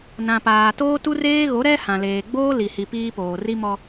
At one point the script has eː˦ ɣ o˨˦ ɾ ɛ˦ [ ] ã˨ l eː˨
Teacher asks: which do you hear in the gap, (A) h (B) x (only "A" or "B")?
A